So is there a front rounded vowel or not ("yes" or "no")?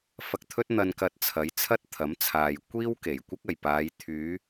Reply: yes